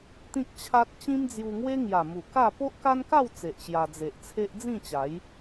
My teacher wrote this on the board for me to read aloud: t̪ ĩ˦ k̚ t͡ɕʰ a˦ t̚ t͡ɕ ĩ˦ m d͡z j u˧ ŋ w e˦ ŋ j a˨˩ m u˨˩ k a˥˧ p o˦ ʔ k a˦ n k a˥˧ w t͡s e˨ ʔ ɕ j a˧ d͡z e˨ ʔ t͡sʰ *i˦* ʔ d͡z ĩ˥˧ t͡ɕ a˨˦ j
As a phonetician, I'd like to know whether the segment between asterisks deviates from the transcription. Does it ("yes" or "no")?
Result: yes